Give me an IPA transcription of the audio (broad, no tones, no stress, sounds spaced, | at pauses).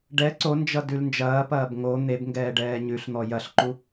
ɖ ɛ ǀ o n d͡ʒ ʌ d ʉ l n d͡ʒ ɐː p ɐː b ŋ o n̪ e b ŋ ɡ ɛː ɖ ɛː ɲ ʉ ɬ n̪ ɔ j ɐ ɬ ǃ u